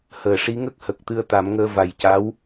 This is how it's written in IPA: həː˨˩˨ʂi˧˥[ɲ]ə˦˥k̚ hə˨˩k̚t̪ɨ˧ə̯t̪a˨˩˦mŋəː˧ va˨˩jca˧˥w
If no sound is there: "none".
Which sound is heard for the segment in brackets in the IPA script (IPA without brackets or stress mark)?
ŋ